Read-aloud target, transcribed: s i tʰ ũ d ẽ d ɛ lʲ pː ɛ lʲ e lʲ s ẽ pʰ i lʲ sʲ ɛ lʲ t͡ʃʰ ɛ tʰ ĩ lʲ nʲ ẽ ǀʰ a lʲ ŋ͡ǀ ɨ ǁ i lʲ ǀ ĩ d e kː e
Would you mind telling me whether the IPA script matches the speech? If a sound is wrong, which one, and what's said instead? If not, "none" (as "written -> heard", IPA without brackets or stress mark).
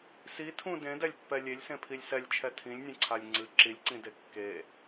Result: sʲ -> s